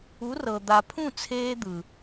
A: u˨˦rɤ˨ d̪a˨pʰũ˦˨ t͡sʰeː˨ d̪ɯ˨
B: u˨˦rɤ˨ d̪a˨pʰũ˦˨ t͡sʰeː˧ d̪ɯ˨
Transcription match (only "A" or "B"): B